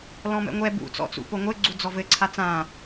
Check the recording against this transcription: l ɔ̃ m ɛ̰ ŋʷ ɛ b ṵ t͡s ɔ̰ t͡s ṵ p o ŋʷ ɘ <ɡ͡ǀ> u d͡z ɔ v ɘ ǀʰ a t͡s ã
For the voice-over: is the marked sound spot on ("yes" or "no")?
yes